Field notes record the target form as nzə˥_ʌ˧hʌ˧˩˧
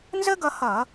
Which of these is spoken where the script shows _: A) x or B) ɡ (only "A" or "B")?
B